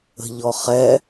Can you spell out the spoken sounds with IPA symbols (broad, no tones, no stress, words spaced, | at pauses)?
ə̤ʎɔ χɛ